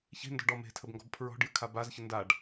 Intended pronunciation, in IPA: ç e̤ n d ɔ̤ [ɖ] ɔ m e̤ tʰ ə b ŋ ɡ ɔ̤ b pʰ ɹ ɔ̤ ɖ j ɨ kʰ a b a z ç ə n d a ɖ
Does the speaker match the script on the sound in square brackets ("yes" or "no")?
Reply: yes